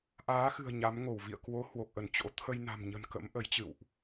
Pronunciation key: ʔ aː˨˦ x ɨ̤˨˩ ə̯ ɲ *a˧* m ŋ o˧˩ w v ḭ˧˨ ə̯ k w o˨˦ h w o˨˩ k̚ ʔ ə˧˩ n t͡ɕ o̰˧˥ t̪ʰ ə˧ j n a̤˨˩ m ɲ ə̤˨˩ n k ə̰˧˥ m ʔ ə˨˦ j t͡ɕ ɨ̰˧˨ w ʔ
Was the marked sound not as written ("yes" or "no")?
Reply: yes